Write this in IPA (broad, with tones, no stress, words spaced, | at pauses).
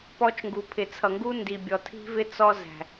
pɔ˦t͡ʃŋɡu˨ pʰɪ˨t͡sʰʌ˨ŋɡu˦ ndi˨bʲɔ˨tʰi̤˦vɪ˦ t͡sɔ˦zæ̤˨